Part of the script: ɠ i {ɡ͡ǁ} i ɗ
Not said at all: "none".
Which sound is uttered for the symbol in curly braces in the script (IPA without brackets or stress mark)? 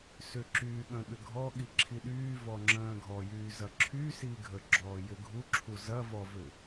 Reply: ǁʰ